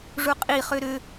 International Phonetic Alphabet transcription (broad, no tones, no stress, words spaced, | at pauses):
ʐuqʼi χøɾø